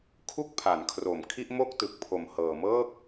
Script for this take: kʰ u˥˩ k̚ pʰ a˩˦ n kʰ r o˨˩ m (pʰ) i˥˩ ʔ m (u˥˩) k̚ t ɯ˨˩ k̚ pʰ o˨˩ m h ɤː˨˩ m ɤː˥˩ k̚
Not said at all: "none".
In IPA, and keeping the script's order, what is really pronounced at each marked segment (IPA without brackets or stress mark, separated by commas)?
kʰ, o˥˩